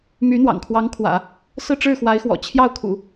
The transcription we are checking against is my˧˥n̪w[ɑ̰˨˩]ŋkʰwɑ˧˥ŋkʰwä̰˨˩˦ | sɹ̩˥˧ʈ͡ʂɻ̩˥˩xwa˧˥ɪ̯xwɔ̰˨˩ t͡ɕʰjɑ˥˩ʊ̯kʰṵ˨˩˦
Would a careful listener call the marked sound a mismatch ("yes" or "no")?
no